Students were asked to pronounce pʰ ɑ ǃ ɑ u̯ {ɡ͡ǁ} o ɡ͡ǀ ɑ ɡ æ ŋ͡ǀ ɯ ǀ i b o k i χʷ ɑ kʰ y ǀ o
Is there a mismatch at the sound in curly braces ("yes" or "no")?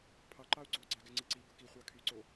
yes